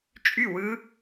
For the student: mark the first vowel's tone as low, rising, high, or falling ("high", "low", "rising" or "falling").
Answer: falling